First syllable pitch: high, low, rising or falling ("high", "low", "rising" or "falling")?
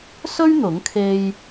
high